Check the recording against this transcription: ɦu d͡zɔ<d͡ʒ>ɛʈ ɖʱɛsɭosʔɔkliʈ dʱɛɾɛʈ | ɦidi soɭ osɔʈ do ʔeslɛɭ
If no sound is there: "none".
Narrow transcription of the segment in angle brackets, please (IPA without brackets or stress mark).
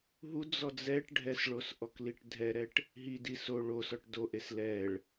d͡z